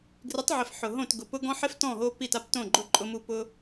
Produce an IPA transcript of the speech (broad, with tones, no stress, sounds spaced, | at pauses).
ɡ r ɪ˨˦ tˤ ʕ ɪ˨ f ħ ʊ˨ ɦ õ˦˨ t ɡ ʊ˨ p ʊ˦ ɡ ɔ̃˦ ħ ɪ˦ f t ɔ̃˦˨ ɦ o˧ p i˦˨ t a˦ p t õ˦˨ ɡ͡ǃ ʊ˦˨ ǃʼ ʊ˧ m u˦˨ p ʊ˦